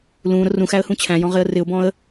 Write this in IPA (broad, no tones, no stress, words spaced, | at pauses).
lũ ɾʊrũxæə̯ hũt͡ɕʰæ̃jɔ̃ ʁɪə̯rɪʊ̯bɔ̃ə̯